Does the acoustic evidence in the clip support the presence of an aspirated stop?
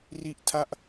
yes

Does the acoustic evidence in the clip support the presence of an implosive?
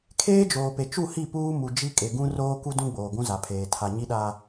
yes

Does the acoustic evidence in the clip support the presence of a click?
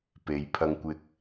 no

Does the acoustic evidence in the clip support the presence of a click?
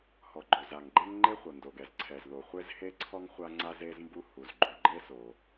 yes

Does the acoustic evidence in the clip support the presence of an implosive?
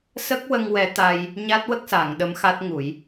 yes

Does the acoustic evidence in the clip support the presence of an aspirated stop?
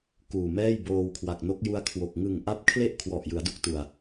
yes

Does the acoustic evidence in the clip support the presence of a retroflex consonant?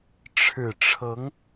yes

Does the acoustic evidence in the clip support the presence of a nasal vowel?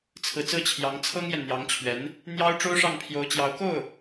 no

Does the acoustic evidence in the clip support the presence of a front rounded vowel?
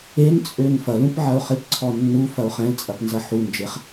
yes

